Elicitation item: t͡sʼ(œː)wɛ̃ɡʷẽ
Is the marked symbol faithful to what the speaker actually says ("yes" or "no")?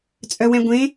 no